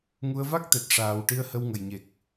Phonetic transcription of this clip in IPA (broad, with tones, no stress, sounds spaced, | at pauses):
ŋ u˧ ə̯ v a˦˥ k̚ t̪ ɛ˨˩ t̚ ʂ aː˨˩ w ʈ i˧ ə̯ h ə˧ w ŋ ə˨˩ j ɲ e˨˩ k̚